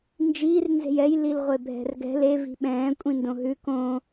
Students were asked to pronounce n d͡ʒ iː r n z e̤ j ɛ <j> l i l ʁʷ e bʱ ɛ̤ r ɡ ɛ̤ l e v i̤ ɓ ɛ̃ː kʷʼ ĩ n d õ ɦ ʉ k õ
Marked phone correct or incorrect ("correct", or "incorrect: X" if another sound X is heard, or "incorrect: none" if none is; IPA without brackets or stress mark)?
correct